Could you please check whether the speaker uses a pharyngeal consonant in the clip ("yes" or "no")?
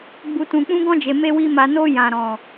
no